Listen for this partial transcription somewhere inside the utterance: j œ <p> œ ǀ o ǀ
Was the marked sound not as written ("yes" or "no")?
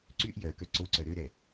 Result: yes